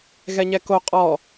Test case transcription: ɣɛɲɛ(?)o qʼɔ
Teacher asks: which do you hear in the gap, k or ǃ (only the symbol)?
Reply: k